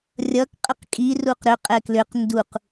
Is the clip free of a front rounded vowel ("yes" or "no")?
no